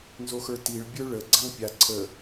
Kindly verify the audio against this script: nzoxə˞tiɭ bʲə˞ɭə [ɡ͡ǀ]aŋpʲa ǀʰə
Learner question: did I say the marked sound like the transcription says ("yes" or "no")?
yes